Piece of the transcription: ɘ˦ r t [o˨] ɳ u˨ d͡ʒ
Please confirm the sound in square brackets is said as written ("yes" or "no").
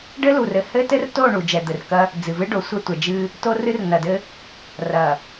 no